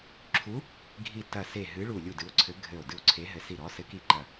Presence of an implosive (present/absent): absent